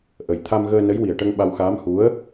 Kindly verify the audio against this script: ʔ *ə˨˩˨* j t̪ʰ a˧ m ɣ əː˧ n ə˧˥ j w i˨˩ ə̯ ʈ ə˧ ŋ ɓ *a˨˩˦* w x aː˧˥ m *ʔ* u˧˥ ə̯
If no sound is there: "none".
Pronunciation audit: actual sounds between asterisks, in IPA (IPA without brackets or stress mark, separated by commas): ə˨˩, a˧, h